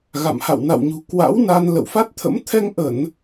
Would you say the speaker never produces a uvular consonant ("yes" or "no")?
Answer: yes